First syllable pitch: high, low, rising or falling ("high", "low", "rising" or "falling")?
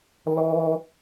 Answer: high